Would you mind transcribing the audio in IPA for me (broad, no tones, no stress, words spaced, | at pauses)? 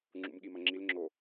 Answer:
ŋ͡ǁṵmɠimɐŋ͡ǁil ŋ͡ǁo